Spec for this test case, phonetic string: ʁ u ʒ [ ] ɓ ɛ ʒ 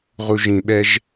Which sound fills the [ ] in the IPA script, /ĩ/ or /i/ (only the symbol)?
ĩ